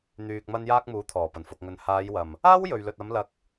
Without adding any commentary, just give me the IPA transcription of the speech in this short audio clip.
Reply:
n̪ yː˧ k̚ m ɐ˧ n j aː˧ k̚ m uː˨˥ t̪ʰ ɔː˨˩ p ɐ˨˩ n f ʊ˨ k̚ ŋ ɵ˨ n h aː˨˧ j w ɐ˨˩ m | aː˥ w j ɵ˨ ɥ l ɵ˨ t̚ ɐ˨˧ m l ɐ˧ k̚

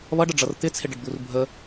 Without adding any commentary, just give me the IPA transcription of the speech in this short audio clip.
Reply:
β ʌ ɖ ə ɖ͡ʐ ʌ r t̪ ɪ t͡sʰ ɪ ɖ ə ɖ d̪ u r bʱ ə

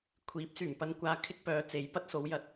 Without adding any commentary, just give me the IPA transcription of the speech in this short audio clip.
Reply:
kʷʰ iː˨˥ p̚ s yː˨˩ m p ɐ˧ n kʷ aː˧ kʰ ɪ˥ k̚ p œː˨˧ t͡s e˨˥ j p ɐ˥ t̚ s o˨˥ w j ɐ˧ t̚

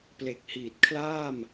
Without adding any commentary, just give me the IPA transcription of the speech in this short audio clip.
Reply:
p l e˨˩ k̚ h iː˨˩ t̚ kʰ l aː˥˩ m

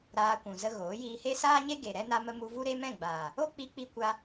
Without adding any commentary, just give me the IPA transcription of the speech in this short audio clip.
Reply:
ɾ aː˧ kʷ ũ˨ z ə˧ ɣ oː˨˦ j iː˧ h e˦ s aː˦ ɲ e˦ ɡ e˨ ɾ ɛ˧ n a˧ m ə˧ m u˧ v u˦ ɾ e˦ m ɛ̃˦˨ ɡ͡b aː˨ | o˦ k͡p i˧ k͡p i˧ kʷ a˦

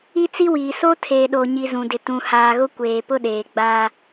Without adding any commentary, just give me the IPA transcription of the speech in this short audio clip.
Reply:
i˦ t͡s i˦ w iː˨ s o˦ tʰ eː˨ ɗ oː˨ ɲ i˨ z ũ˨ d ɪ˨ t ũ˨ h aː˨ ɣ ʊ˦ kʷ eː˨ p ʊ˦ ɗ eː˨ ɡ͡b aː˦

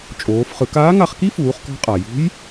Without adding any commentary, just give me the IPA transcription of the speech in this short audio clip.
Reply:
t͡ʃʼ oː˩˧ f χ ɯ˩˧ k aː˧˥ ŋ a˧ χ k i˥ f uː˩˧ χ k ɔ̤˧ qʼ a˩ j ṳ˧˥ j

